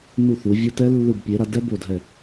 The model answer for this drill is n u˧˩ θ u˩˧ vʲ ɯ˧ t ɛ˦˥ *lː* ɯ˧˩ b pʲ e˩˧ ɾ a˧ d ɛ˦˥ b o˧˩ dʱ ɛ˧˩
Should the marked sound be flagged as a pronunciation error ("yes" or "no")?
no